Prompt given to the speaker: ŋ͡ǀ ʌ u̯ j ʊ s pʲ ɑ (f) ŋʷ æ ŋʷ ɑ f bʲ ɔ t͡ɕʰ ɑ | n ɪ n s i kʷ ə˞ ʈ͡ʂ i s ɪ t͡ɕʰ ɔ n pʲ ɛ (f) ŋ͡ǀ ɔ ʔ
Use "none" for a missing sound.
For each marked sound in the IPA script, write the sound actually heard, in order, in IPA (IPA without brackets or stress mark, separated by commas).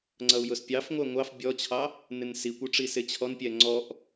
f, none